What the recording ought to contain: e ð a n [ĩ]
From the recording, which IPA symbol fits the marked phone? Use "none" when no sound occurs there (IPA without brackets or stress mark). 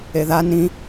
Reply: ĩ